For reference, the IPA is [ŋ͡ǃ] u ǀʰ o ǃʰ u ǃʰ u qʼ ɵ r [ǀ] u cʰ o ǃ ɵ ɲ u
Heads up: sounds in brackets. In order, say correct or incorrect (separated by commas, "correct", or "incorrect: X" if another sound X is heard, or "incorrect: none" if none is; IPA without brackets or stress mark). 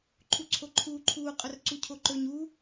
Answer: incorrect: ǃʰ, correct